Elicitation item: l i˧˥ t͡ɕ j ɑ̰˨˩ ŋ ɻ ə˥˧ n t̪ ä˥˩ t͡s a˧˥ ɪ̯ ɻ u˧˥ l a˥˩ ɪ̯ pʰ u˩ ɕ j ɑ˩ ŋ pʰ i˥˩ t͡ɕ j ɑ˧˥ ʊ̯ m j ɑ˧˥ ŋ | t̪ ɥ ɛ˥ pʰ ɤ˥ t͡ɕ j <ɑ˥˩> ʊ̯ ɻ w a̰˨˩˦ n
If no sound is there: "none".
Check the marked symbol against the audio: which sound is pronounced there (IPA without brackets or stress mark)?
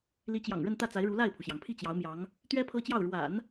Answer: ɑ˥˩